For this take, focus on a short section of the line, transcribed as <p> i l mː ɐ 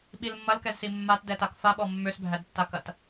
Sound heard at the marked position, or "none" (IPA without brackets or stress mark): ɓ